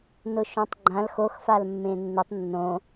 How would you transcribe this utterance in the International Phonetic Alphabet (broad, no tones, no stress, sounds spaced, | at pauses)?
n ʊ ʃ õ tˤ ɡ͡ǃ ã l x o x f a l mː ẽ nː ʊ tˤ nː õ